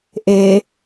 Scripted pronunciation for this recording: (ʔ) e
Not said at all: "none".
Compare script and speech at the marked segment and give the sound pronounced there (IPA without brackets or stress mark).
ʔ